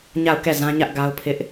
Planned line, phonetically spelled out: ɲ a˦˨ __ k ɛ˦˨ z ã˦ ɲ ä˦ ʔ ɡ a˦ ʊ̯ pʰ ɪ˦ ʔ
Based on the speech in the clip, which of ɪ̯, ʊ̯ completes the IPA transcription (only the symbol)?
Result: ʊ̯